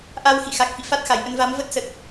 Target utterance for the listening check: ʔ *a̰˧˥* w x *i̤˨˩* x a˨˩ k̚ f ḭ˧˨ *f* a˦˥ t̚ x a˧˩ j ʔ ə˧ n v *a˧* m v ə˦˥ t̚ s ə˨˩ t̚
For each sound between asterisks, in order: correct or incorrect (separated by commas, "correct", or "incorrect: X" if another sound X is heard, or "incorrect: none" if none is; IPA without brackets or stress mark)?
incorrect: a˧, incorrect: ḭ˧˨, correct, incorrect: a˨˦